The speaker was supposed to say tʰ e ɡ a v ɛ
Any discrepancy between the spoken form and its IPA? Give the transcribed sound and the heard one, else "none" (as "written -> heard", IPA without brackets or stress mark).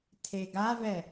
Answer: none